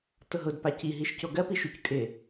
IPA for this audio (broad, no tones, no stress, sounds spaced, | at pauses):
t ʊ ɦ ʊ d p a c i ɦ i ʃ c o ɡ ɜ p i ʃ u c kʼ ɪ